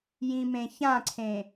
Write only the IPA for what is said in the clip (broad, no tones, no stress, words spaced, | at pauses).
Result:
jĩmẽçãǀʰẽ